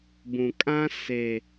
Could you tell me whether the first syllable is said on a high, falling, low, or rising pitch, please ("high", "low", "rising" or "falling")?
low